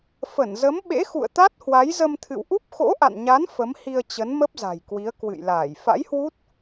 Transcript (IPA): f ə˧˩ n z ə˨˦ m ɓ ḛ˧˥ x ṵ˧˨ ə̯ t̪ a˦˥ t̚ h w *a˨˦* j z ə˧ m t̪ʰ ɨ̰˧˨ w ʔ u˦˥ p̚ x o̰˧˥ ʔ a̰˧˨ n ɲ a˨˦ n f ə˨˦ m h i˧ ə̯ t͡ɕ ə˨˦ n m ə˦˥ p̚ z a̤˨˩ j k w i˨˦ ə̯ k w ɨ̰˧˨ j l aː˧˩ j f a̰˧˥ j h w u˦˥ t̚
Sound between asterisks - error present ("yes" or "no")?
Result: no